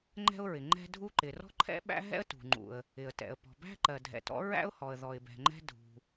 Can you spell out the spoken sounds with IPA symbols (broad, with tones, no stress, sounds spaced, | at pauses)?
ŋ͡ǃ ɛ̤˥ ʊ̯ ɹ ɪ˩ ŋ͡ǃ ɛ̤˥ dʱ u˥ ǃ ɪ˩ r ɔ̤˥ ǃʰ ɛ̰˥ ɓ æ̰˥ ɦ ɛ̰˥ ə̯ t ṳ˩ ŋ͡ǃ ṵ˩ ə̯ | ɪ˩ ə̯ t ɛ̰˩ ə̯ p ɔ̤˩ b æ̤˥ ǃ ɜ˩ dʱ ɛ̰˩ t ɔ̰˥ ɹ æ̰˥ ʊ̯ h ɔ˩ ə̯ ð ɔ˩ ɪ̯ b ɛ̤˩ ŋ͡ǃ ɛ̤˥ dʱ ṳ˩